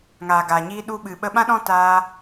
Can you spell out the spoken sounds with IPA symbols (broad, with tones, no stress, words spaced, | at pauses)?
ŋaː˨ɡaː˨ɲiː˧ ɗu˧ɓɨ˨ ɓə˧ɓã˦ɗɔ̃˦ taː˦